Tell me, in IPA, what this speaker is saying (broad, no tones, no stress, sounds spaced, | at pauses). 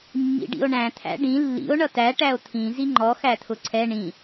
mː ḭ ɖ ḭ o̯ ɳ æ̃ t̪ʰ æ̰ ɖ ĩ lː ḭ o̯ ɳ ʌ t æ ʈ æ o̯ t̪ʰ ĩ z i ŋ͡ǃ ɔ x æ t̪ʰ ʊ ǀʰ ɛ ɳ ĩ